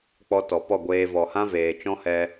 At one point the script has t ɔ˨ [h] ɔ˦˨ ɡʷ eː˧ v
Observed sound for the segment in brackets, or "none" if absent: p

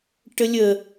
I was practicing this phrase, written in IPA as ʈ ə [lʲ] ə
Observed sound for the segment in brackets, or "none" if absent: lʲ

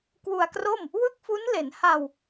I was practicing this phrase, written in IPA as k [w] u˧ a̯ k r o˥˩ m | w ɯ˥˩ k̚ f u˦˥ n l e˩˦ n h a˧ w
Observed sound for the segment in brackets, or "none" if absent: w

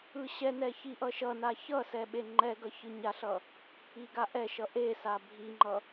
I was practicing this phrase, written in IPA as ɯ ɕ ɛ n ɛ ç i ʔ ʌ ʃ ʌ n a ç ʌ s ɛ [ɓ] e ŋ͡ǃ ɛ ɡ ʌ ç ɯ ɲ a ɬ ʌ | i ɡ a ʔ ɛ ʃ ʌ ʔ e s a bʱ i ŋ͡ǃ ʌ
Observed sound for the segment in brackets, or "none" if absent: ɓ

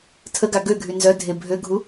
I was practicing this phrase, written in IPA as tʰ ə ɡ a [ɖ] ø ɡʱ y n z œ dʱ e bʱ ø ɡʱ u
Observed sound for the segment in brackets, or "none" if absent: ɡ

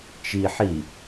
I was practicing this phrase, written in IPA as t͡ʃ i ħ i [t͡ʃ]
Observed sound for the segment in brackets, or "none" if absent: none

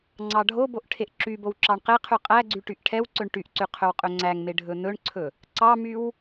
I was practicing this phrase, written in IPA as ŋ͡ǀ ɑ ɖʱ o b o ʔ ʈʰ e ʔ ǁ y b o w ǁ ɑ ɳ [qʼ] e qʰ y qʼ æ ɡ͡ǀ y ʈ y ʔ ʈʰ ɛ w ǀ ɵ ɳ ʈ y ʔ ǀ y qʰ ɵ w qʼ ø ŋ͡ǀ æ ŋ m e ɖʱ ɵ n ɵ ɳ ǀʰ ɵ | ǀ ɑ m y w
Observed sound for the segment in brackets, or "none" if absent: q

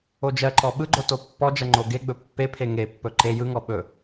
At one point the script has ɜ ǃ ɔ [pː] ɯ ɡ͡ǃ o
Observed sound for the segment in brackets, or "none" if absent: ɓ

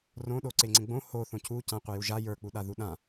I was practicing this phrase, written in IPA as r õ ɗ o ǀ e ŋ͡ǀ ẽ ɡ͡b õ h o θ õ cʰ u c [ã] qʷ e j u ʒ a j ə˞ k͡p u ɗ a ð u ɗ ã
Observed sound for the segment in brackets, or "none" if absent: ã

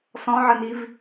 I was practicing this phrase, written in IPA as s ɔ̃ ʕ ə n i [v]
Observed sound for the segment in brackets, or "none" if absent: v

